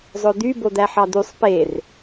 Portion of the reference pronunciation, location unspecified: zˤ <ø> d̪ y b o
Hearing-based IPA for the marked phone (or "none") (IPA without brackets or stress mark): ɵ